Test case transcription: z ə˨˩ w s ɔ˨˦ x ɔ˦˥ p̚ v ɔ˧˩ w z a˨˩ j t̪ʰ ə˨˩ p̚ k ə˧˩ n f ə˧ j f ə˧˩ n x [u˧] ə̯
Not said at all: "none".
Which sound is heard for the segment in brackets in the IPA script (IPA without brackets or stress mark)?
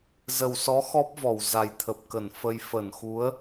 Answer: u˨˦